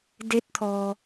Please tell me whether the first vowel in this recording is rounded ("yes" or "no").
no